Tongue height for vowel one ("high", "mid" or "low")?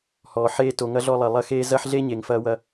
mid